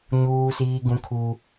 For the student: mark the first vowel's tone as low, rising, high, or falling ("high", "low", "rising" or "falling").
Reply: high